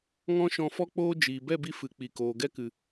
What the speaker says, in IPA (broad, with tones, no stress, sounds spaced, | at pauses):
ŋ ɔ̃˦ ʃ ɔ̃˧ f ɔ˦ k͡p oː˦ d͡ʒ iː˨ b ɛ˦˨ b i˧ f ɨ˨ k͡p i˨ k oː˨ ɡ ɛ˦ k ɨ˨